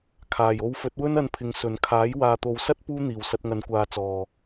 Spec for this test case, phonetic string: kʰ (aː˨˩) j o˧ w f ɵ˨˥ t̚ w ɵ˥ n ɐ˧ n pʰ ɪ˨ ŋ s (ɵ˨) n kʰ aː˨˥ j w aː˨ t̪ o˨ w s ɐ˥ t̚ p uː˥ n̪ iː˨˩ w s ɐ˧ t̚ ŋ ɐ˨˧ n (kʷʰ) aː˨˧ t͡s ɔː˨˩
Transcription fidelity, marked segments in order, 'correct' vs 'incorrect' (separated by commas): correct, correct, incorrect